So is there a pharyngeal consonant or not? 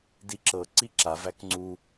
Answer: no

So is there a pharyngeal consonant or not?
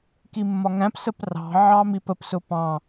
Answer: yes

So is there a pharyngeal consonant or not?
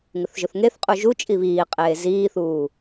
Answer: no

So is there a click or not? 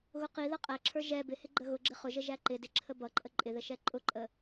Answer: yes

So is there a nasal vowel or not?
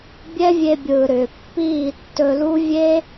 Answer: no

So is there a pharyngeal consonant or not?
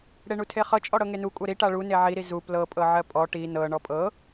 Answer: yes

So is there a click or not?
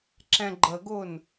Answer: yes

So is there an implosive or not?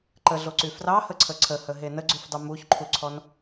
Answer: no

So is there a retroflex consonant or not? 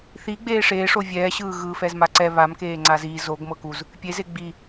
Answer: yes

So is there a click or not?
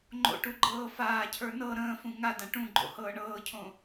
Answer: yes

